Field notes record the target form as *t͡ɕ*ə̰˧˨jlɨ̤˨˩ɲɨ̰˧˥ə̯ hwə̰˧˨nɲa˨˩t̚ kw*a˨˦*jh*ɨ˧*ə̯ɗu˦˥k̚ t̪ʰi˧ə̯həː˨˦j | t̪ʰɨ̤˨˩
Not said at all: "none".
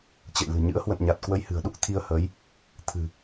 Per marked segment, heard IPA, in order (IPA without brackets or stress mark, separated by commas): t͡ɕ, ə˨˦, ɨ̤˨˩